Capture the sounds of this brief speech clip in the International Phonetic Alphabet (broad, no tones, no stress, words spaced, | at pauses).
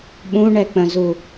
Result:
ɓũɳɛk͡pə̃zu